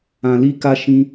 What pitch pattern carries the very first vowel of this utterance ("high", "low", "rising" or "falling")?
low